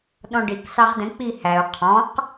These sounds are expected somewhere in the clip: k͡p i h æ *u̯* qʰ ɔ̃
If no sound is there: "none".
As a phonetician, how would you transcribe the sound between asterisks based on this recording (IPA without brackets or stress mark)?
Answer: u̯